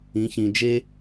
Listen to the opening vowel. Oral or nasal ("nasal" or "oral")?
nasal